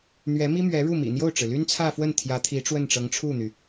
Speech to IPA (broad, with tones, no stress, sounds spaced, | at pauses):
n̪ ɥ ɛ˧˥ m i˥ m ɥ ɛ˧˥ ɻ u˥˩ m ḭ˨˩ n̪ j o˥˩ ʊ̯ ʈ͡ʂ ɻ̩˩ l y˥ n t͡sʰ ä˥˧ f w ə˥˩ n t̪ʰ j ä˧˥ t̪ʰ i˧˥ ʈ͡ʂ w ə˥˩ n ʈ͡ʂ ɤ˧˥ ŋ ʈ͡ʂʰ u˥˩ n̪ y˩